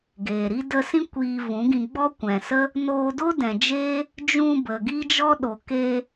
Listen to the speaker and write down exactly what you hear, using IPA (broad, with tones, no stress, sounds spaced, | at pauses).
ɡ eː˨ ɾ i˦ d ə˧ s ĩ˦ kʷ iː˧ v ũ˨˦ ɡ ĩ˧ ɡ͡b ɔ˦ kʷ ɛ̃˨ s ə˦ | n oː˧ d o˦ d ɛ̃˨ d͡ʒ eː˦ | d͡ʒ ũ˧ b ə˨ ɡ i˦ d͡ʒ ɔ˦ ɗ o˨ k eː˧